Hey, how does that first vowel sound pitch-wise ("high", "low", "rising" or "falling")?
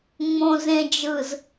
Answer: low